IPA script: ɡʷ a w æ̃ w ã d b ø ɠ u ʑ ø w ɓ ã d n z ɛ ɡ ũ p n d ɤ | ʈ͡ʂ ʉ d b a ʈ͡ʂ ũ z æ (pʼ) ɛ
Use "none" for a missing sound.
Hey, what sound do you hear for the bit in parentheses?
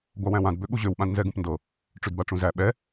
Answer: ɓ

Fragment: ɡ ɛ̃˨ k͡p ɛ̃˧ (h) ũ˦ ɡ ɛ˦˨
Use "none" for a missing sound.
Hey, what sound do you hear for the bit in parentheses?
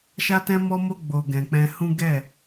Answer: h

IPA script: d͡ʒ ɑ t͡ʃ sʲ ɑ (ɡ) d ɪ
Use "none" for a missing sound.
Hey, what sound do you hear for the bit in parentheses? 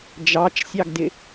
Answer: ɡ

